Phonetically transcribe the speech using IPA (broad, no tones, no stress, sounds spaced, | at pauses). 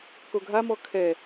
k o ɡʱ a m ɔ kʰ ɛ